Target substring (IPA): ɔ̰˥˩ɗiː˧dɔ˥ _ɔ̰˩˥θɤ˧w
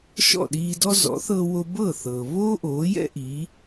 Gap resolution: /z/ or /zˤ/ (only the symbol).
z